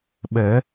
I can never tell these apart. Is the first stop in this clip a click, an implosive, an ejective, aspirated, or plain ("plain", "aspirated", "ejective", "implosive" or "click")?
implosive